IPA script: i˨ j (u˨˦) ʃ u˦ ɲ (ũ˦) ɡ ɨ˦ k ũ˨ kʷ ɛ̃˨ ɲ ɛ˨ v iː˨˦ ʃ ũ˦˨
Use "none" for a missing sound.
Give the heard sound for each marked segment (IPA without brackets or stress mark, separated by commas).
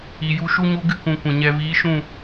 u˨˦, u˦